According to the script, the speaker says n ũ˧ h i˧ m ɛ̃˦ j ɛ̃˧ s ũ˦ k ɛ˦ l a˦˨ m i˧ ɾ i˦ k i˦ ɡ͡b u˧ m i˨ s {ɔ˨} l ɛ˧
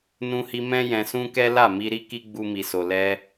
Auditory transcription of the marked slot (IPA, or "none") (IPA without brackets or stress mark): o˨